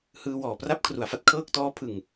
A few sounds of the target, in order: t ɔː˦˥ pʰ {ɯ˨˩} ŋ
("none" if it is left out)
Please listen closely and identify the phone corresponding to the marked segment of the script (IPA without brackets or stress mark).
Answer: ɯ˨˩